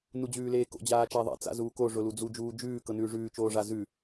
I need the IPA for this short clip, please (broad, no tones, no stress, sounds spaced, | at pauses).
n u d͡ʑ ʉː l eː k o̰ d͡ʑ aː t͡ʃ æ ðˤ ɛ̰ t͡s a̰ z uː k o ʐ ʊ l u d͡z u d͡ʒ uː d͡ʒ ʉː k ɤ n ʉː ʐ ʉː t͡ʃ oː ʐ a z ʉ